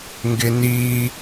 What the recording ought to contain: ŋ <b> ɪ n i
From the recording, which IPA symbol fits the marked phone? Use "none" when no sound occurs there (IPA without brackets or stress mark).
ɡ